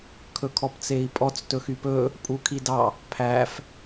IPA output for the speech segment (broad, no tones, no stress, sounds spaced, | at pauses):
kʰ ɵ kʰ ɔ p t͡s e i̯ pʼ ɔ t͡s t ɵ x y p ɵ | pʼ u kʰ i d ɑ | pʰ æ f